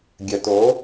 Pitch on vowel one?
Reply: low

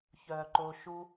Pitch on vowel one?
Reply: low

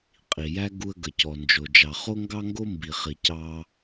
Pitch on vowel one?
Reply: low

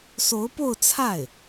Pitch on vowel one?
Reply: rising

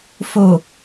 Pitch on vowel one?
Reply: low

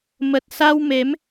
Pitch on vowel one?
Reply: low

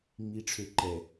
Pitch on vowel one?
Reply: low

